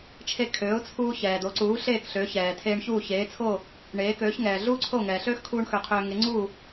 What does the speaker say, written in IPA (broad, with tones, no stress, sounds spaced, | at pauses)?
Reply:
t͡ʃʰ e˧ kʰ øː˩˥ ʊ̯ t͡sʰ uː˧ ç ɛː˩ d̪ o˩˥ ǀ uː˩˥ ɬ eː˥˩ k ɬ ø˩˥ ç ɛː˩ tʰ eː˧ ɳ ç uː˥˩ ç eː˩˥ t͡sʰ o˥˩ | ɳ eː˩˥ k øː˩˥ ç ŋ ɛː˩ ɮ uː˥ ǀʰ o˥˩ ŋ ɛː˩ ɬ øː˥ x kʰ uː˧ ɳ x ø˩˥ qʰ øː˧ ŋ e˩˥ ŋ͡ǀ uː˥˩